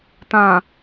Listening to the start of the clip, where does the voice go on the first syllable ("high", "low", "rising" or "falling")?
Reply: low